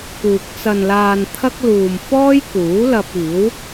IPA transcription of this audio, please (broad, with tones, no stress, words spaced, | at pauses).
kuː˨k̚ t͡sɐ˨nlaː˨n t̪ʰɐ˥k̚ luː˨mfɔː˥jkuː˨˥lɐ˧p̚ iː˨˥w